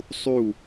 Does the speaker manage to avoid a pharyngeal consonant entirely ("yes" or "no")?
yes